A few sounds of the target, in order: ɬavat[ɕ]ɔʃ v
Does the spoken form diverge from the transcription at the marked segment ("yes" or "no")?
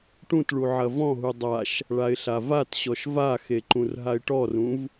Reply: no